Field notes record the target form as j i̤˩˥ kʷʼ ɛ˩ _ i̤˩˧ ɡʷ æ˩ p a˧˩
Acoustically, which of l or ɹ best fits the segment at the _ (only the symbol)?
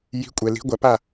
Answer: l